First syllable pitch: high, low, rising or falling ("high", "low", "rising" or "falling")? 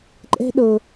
high